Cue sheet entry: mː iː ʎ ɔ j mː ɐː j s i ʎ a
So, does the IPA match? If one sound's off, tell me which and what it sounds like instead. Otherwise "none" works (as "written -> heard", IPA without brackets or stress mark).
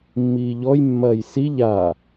none